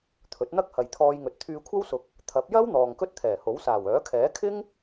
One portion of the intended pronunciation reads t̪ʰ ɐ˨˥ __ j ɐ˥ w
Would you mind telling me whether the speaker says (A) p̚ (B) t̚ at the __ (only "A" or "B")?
A